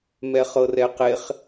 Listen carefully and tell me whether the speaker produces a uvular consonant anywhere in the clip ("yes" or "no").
yes